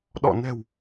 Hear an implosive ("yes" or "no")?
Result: yes